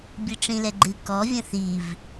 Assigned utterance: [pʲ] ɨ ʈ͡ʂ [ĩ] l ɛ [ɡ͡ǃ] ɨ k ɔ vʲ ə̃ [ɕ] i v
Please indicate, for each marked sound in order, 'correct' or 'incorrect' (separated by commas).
incorrect, correct, correct, incorrect